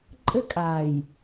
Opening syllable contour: high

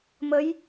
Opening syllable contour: rising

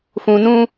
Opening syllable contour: low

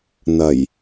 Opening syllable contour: low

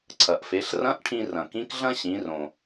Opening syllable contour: low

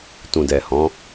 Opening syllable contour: low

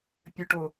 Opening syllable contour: low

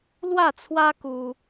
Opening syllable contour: falling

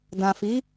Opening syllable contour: low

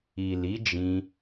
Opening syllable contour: low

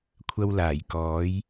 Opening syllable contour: high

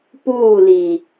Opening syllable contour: falling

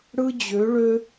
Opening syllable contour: high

